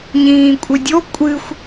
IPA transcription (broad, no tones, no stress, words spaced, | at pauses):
ɲĩːkʷʼɨdʲo kʷʼɨxʷ